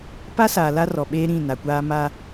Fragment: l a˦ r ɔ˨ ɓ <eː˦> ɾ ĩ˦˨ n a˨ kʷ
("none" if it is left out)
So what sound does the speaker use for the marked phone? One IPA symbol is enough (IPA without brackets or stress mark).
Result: eː˦